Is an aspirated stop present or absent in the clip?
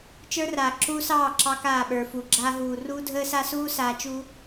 absent